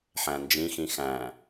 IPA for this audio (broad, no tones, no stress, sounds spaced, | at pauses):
ħ æ̃ n d͡ʒ ĩ x ĩ x æ̃